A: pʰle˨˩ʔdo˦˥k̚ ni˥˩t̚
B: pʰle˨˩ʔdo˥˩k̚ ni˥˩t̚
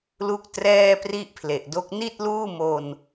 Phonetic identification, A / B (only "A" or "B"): A